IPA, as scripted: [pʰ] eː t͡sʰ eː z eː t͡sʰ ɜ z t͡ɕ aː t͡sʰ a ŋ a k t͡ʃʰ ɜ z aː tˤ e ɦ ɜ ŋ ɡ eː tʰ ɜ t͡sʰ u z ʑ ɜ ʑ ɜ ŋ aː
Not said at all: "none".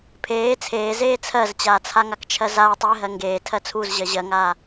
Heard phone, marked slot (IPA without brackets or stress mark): pʰ